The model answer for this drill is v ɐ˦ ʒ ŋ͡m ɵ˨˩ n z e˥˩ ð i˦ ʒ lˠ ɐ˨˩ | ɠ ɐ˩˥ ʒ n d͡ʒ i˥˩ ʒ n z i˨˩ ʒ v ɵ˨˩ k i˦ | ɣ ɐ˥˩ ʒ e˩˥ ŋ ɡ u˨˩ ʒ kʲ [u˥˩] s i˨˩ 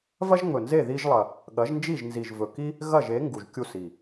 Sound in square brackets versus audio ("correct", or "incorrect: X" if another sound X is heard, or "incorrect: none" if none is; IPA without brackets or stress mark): correct